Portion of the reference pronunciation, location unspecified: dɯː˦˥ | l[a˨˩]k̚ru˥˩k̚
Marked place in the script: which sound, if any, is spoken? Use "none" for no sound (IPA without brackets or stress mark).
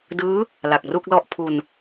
a˨˩